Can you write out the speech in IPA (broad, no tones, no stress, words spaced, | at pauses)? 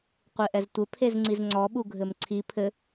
qʷeʔɛztʷɘ pʰezŋ͡ǀizŋ͡ǀɔ ɓuɡʱɘmǀʰi pʰɘ